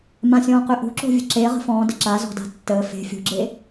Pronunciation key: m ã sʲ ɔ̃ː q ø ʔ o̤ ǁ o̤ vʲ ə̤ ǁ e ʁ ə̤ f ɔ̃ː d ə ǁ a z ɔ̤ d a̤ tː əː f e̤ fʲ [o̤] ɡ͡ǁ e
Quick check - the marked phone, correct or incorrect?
correct